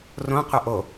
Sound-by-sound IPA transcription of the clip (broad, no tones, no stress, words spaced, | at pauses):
rõ qʷɘʔo